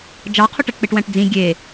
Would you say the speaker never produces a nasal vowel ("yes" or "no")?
no